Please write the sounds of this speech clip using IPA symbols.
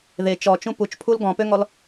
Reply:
ð e t͡ʃ ɔ t͡ʃ ũ p u t͡ʃ pʰ u l ɡ ɔ̃ p ø ŋ ɔ l

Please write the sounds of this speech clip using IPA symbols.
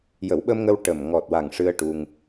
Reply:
j ə˨˩˦ w ɓ ə˧ m ŋ ə˧ w ʈ ə˨˩ m ŋ ɔ˨˩ t̚ w a˨˩ ŋ ʂ ɨ˧ ə̯ ʈ u˧ ŋ

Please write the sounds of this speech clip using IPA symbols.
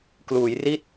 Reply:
k l uː˩˦ j r i˥˩ t̚

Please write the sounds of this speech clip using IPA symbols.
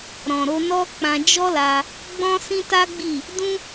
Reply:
ɾ ɔ̃˨ ɾ o˧ n ɔ˦ k͡p ã˧ d͡ʒ ɔ˦ l a˧ | ɡ͡b ɔ̃˦ s ĩ˦ t a˦ ɡ͡b i˦˨ | d ũ˦

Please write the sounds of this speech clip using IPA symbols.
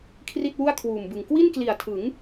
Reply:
kʰ r i˥˩ t̚ w u˥˩ a̯ kʰ w uː˨˩ m b ɯ˨˩ ŋ k w i˥˩ n k l i˨˩ a̯ tʰ ɯ˩˦ ŋ

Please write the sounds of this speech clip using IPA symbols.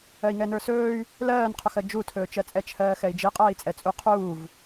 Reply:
ɜ i̯ ŋ ɛ n ə˞ s ɵː y̯ | l ɜː n qʰ ɵ x ɜ d͡ʒ u tʰ ɵː t͡ʃ ɜ t͡sʼ ɛ t͡ʃʰ ɜː x ɛ i̯ d͡ʒ i qʼ ɜː i̯ t͡sʼ ɛ t͡sʼ u qʰ uː v

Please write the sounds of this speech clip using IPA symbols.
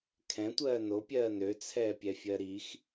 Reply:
kʰ ɛ̃ tʷ ɜː n o pʲ ɜː n ø t͡sʰ ɛː pʲ ɛ fʲ ɜ ɾ i x

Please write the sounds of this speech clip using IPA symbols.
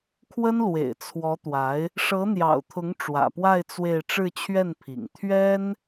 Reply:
kʰ w ə˥ n l w ḛ˨˩ ɪ̯ t͡sʰ w ɔ˧˥ t̪ w a˧˥ ɪ̯ | ʂ ɤ˧˥ n̪ j ɑ̰˨˩ ʊ̯ t̪ʰ ʊ˧˥ ŋ ʈ͡ʂ w ä̰˨˩ p w a˥˧ ɪ̯ t͡s w e˥˧ ɪ̯ ʈ͡ʂ ɻ̩˥˧ t͡ɕʰ ɥ ɛ˥˩ n pʰ ḭ˨˩ ŋ t̪ʰ ɥ ɛ˥ n

